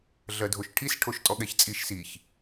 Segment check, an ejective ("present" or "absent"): present